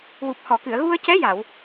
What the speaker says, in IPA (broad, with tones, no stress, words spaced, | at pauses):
wu˨˩p̚hɔ˨˩˨kɨ˨˩˨ə̯ ɣu˧ə̯cɛ˧˥ja˨˩˨w